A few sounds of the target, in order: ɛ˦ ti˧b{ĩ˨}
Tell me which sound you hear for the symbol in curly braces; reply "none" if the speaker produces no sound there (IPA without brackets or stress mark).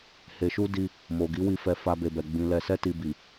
i˨